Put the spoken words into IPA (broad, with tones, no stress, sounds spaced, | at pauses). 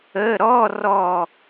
ə˧˥˧ ɾ ɔ˧˥˧ r ɔ˦˨